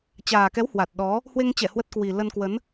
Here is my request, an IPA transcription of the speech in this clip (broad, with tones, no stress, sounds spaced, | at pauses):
t͡ɕ aː˨˩ k ɛ˨˦ w h w a˨˩ t̚ ɗ ɔ˨˦ | h w e˧ ŋ t͡ɕ ɛ˧˩ h w ə˦˥ t̚ k w i˨˩ l ə˧ n k w ə˨˦ n